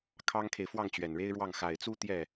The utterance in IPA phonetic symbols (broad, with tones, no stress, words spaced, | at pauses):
kʰɑ˥ŋkʰe˨ɪ̯ fwɑ˥˩ŋt͡ɕɥɛ˨˩nɻe˥ɪ̯ɻwɑ˥˩ŋ xa˨˩ɪ̯t͡su˥ t̪jɛ˥˩